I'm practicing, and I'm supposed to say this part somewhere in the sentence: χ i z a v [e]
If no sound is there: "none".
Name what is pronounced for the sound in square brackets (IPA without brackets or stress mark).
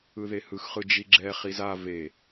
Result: e